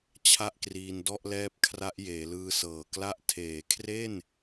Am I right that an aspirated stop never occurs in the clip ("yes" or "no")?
no